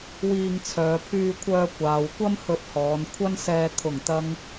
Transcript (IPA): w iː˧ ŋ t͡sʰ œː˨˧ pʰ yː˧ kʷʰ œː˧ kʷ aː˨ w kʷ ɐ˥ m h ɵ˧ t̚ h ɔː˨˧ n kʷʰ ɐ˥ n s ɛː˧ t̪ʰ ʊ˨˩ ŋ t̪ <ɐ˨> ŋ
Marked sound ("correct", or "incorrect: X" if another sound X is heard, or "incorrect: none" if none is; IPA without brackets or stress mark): correct